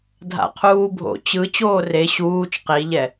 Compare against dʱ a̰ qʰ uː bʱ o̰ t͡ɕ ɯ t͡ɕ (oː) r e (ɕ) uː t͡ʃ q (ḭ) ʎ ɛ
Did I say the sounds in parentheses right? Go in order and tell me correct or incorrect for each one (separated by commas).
correct, correct, incorrect